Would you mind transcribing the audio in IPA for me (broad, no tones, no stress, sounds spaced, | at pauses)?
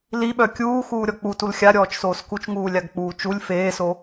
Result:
l i ɓ œ kʲ uː x uː ɾʲ ɔ k͡p u t u l xʲ a ɾʲ ɔː t͡ʃ s oː s k u t͡ʃ ŋ uː lʲ a ɡ k͡p uː t͡ʃ u lʲ f eː s o